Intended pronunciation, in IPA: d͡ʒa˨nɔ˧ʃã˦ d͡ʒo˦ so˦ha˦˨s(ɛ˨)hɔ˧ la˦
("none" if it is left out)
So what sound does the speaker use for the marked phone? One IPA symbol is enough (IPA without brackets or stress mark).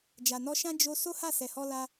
ɛ˨